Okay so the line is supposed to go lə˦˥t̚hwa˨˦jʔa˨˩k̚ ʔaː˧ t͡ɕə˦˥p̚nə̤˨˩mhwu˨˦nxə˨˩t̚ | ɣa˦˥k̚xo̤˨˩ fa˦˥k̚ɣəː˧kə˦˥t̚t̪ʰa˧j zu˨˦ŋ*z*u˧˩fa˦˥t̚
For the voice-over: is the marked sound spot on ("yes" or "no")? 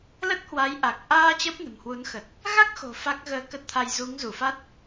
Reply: yes